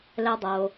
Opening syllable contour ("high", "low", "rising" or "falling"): high